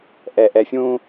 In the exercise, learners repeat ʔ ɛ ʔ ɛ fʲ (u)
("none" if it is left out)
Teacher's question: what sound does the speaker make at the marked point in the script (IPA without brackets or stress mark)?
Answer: ũ